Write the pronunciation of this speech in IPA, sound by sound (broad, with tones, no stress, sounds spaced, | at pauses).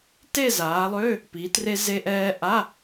t e˥˧ z aː˩˧ lˠ ø˧˥˧ | p i˩˧ t r e˧ z e˧ ʔ ɛː˧ ʔ a˧˥˧